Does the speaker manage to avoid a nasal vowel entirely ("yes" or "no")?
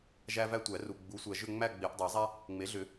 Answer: yes